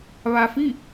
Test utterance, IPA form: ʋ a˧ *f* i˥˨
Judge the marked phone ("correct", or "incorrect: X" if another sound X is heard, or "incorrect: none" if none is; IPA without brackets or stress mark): correct